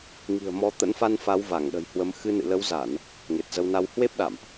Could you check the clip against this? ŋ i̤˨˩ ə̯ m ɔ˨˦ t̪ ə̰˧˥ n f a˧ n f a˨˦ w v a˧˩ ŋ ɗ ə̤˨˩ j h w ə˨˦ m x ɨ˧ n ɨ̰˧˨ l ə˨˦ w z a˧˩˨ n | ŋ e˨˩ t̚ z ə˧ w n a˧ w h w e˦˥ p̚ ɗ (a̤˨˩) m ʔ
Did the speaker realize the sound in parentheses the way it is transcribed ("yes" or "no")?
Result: no